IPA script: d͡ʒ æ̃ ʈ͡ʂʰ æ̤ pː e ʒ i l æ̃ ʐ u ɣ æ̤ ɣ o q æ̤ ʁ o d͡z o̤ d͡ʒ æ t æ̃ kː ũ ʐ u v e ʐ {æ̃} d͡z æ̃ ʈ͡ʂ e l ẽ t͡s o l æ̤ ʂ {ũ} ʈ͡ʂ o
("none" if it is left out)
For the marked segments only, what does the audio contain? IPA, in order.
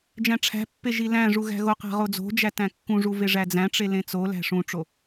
æ, ũ

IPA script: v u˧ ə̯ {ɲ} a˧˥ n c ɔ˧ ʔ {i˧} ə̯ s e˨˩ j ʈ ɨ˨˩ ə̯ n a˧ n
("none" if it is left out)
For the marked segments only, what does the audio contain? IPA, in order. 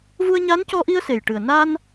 ɲ, i˧

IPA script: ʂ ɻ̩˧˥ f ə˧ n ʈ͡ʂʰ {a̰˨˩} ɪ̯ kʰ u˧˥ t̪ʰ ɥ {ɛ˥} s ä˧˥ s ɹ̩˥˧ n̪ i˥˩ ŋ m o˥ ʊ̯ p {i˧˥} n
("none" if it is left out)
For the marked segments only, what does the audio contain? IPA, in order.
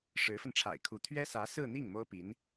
a̰˨˩, ɛ˥, i˧˥

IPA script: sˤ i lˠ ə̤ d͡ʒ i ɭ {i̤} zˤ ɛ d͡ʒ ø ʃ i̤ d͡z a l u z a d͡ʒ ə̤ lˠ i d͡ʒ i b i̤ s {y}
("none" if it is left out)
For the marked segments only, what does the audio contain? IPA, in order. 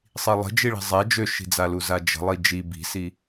i̤, i

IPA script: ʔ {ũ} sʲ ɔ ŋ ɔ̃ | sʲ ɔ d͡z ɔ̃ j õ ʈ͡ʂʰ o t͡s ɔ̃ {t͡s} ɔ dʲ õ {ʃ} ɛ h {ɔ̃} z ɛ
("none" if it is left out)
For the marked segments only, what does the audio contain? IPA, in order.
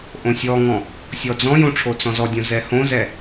õ, z, z, õ

